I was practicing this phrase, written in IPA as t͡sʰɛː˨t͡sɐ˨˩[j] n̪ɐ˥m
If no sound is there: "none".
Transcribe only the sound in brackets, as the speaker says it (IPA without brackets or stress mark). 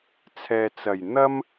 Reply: j